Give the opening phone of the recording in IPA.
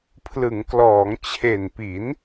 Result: pʰ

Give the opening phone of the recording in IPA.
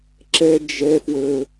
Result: ǁ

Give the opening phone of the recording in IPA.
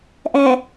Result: ʔ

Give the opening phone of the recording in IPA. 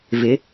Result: v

